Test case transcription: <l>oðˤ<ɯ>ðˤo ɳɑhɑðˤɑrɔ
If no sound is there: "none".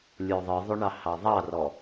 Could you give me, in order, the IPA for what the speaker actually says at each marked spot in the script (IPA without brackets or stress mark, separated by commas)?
lʲ, ɯ